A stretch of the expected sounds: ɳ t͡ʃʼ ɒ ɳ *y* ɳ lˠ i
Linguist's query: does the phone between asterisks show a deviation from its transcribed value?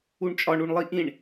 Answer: yes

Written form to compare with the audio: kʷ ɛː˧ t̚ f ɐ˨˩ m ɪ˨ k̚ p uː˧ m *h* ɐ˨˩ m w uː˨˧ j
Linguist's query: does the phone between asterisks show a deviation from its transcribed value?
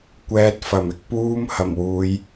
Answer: no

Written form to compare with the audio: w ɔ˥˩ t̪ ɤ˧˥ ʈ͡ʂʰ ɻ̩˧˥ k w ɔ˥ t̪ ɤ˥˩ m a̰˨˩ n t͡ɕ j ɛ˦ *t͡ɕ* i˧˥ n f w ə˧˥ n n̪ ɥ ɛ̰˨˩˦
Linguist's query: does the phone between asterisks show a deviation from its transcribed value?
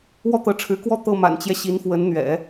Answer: yes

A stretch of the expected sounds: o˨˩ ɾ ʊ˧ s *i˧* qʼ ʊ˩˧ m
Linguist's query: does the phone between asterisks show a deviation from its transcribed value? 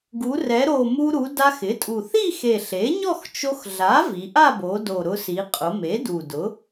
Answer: yes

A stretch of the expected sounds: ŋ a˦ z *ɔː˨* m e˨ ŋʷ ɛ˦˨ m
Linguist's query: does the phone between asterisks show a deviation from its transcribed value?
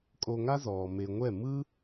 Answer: no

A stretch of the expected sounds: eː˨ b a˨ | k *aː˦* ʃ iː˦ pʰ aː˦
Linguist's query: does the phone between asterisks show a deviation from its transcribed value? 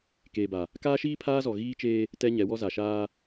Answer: no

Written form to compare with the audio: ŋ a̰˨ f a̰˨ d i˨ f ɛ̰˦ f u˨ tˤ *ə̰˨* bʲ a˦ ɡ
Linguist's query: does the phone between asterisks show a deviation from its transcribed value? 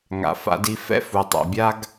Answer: yes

